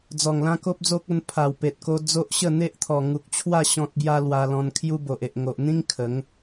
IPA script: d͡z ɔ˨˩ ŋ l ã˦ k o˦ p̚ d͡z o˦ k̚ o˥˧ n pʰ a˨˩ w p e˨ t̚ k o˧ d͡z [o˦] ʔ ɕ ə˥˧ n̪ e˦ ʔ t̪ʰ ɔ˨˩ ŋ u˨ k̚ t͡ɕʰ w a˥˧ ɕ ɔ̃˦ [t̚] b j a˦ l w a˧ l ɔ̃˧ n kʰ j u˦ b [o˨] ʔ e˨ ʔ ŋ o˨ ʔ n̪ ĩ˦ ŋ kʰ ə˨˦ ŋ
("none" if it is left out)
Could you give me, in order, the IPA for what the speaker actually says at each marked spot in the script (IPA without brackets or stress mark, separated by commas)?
o˦, t̚, o˨